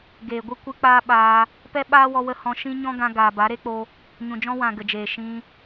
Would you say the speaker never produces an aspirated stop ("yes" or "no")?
yes